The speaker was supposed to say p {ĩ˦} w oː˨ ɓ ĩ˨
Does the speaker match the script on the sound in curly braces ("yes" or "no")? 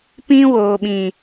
yes